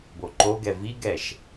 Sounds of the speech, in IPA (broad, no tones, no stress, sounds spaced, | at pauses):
b o ǃ o ɡ ɛ v i ɡ ɛ ʃ